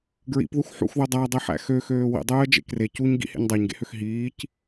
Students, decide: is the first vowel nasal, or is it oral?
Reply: oral